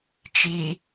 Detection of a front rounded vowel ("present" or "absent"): absent